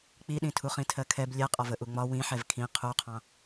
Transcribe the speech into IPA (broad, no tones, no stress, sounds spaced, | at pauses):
k͡p i ɗ ĩ tʰ u χ ĩ tʰ ɜ kʰ ɛ b lʲ ɛ qʼ ɒ v ə ʔ u ŋ͡m ɒ w ĩ ħ ɛ v kʰ ĩ qʰ u qʰ ɑ̃